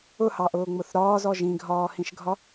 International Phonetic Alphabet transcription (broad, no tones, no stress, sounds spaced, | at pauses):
ʊ h ɑ ʔ ʊː ŋ͡m ʊ θ ɾ ɒː z ɔ ʒ ĩ ɡʱ ɒː h ĩ ʃ ɡʱ ɒ